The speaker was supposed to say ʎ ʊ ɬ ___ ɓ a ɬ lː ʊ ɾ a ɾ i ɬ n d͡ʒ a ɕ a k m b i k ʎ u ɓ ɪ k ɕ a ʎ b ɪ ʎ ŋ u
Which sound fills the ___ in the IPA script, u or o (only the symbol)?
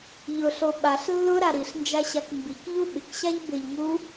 o